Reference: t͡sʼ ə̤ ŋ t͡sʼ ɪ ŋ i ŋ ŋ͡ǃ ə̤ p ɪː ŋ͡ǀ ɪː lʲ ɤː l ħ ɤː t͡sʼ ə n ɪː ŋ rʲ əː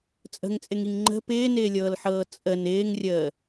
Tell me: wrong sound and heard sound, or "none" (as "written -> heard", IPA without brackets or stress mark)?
ŋ͡ǀ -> n